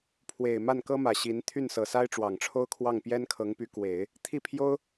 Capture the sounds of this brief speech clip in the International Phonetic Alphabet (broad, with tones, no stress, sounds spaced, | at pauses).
pʰ w e˨˩ ɪ̯ m a˥˩ n k ɤ˥ m ä˨˩ ɕ i˧˥ n t̪ʰ y˥˩ n s ɤ˨˩ s a˥ ɪ̯ ʈ͡ʂ w ɑ˨˩ ŋ ʈ͡ʂʰ o˥ ʊ̯ kʰ w ɑ˥˩ ŋ p j ɛ˥ n kʰ ɤ˧˥ ŋ p y˧˥ k w e˨˩˦ ɪ̯ | t̪ʰ i˥˩ pʰ j o˥ ʊ̯